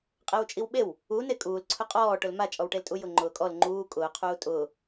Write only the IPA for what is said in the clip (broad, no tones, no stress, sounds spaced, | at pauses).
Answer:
qʼ e w t͡ʃʼ i w ɓ e w | u n e kʼ uː l ǀʰ ʊ qʼ ɔː ʈ ʊ l m a t͡ʃʼ ɔ w ʈ e l tʼ u j ʊ ŋ͡ǃ ʊː kʼ ɔ l ŋ͡ǃ uː kʼ ʊː qʰ uː tʼ ʊː